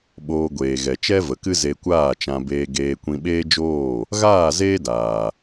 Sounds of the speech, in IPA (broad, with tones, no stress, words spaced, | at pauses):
ɓoː˧ɡʷeː˨ ɣɛ˨ t͡ʃɛ˦və˨kɨ˦ ze˧kʷaː˦˨t͡ʃã˧ beː˧ɡeː˧ kʷĩ˧ɓeː˦d͡ʒoː˦˨ | ɣaː˦˨zeː˦daː˨